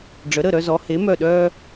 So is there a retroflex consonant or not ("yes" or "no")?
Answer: yes